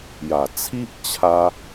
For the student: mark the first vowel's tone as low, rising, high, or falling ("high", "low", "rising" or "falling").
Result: low